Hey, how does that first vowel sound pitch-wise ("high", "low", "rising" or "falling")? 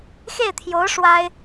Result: falling